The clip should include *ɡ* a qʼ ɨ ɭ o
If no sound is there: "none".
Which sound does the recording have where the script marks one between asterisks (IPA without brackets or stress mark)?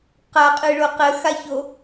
q